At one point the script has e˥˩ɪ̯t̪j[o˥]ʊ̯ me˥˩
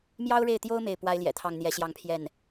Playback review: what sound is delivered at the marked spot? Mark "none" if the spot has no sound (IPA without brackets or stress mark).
o˥